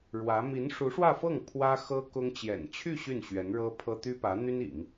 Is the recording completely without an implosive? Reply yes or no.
yes